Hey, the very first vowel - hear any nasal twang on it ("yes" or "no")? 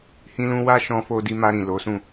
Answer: yes